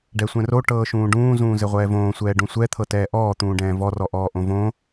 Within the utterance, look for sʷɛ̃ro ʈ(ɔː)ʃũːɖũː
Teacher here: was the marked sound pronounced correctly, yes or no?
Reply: no